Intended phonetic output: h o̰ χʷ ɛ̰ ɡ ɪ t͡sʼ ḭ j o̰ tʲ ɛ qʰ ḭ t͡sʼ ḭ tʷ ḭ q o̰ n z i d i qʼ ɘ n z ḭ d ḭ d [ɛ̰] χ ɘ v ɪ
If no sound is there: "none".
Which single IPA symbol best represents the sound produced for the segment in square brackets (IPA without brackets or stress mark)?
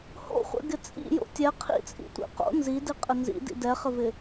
ɛ